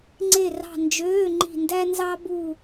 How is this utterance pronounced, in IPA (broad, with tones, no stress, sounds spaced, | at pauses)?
ŋ͡ǀ e˦˨ r ɑ̤˦˨ n d͡ʒ øː˧˥˧ ŋ͡ǃ i̤˦˨ n d æ˥ n z ɑ˥ b u˦˨